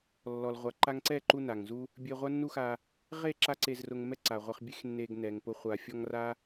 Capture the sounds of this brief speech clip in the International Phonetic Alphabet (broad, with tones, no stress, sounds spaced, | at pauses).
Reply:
lː ɔ˨ l ʁʷ a˨ ǃ a˧ ŋ ǀ ɛ˦˨ ǃ u˧ n a˨ ŋ z u˦ | bʲ e˧ ʁʷ a˦ nː u˦ x a˧ | ʁ e˦˨ ǁ a˦ ǀ e˧ z r ʊ˧ ŋ m ɛ˦ ǀ a˨ ʁʷ ɛ˧ χ bʲ e˦ x nː e˧ ɡ n ɛ˨ ŋ p ʊ˧ χʷ a˧ fʲ ɔ˦ ŋ r a˦